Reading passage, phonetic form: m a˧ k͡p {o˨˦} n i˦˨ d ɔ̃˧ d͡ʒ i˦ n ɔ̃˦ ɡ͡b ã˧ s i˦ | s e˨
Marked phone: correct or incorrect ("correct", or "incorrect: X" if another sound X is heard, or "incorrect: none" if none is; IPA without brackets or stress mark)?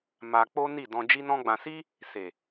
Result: incorrect: o˦